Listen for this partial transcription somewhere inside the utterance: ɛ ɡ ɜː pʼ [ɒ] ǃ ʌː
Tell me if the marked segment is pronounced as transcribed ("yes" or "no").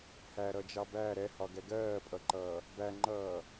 no